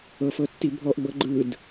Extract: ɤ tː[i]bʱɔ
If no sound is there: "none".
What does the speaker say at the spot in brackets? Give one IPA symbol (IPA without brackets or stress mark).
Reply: i